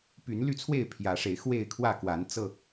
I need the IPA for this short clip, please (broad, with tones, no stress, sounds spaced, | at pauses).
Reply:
p y˨˦ n l y˥˨ t͡sʰ w e˥˨ ɪ̯ pʰ j ä˨˦ ʂ e˨˦ ɪ̯ x w e˥˨ ɪ̯ kʰ w ä˥˨ k w a˨˦ n t͡s ɤ˥˨